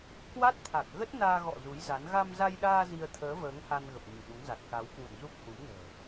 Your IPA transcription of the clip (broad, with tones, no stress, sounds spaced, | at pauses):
k w a˦˥ t̚ t̪ʰ a˨˩ k̚ ɣ ə˦˥ t̚ n aː˧ ɣ ɔ̰˧˨ z u˨˦ j z a˨˦ n ɣ a˧ m z a˧ j ɗ aː˧ z i˧ ə̯ t̪ʰ əː˨˦ v əː˨˦ ŋ h a˧ n ɣ ə˨˩ p̚ ɲ i˧˩ ɗ u˨˦ ŋ z a˨˩ t̚ k a˨˦ w k w ṵ˧˨ n z u˦˥ k̚ h u˨˦ m n ə̤ː˨˩